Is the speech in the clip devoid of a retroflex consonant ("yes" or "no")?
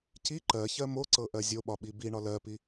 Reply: no